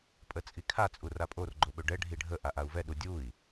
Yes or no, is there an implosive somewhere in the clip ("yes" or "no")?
yes